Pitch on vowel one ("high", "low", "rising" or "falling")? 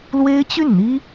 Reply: high